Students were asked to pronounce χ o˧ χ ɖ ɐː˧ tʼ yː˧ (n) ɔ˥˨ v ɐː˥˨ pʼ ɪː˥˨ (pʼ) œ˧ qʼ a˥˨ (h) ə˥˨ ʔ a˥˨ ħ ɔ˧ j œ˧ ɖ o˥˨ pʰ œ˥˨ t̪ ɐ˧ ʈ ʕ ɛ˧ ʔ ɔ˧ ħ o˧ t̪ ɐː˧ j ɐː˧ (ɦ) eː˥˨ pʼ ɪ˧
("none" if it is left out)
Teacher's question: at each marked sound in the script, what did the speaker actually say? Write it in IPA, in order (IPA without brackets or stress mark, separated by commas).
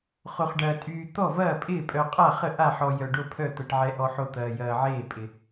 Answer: t̪, pʼ, χ, ʕ